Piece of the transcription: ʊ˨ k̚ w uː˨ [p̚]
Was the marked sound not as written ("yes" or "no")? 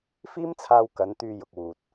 yes